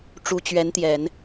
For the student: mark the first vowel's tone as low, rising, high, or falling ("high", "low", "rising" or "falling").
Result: rising